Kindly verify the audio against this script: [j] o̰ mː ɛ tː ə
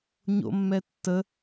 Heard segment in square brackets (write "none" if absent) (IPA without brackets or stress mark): ɲ